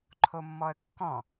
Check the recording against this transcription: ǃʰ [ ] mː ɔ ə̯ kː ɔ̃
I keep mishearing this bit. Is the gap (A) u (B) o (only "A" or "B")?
B